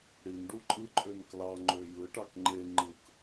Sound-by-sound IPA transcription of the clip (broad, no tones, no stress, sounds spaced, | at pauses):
ɽ i n ɖ u ǃʼ ɯ ǃʼ ø n k l ɑ ŋ͡ǃ ø j ɯ ʈ ɑ k ŋ͡ǃ e ŋ͡ǃ ɯ k